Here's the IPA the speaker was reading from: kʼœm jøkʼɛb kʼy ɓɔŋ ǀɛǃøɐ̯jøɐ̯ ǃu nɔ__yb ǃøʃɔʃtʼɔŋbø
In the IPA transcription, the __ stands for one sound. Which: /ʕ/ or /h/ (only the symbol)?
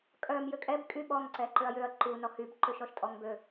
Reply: h